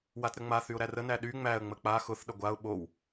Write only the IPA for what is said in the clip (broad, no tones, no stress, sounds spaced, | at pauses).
w a t ɾ ə ŋ͡m a θ y ʊ̯ ɾ æ r ə n æ ɗ y ŋ͡m æ ə̯ ŋ͡m ə k͡p a x ʊ θ ɗ ə ɡʷ a ʊ̯ ɓ o w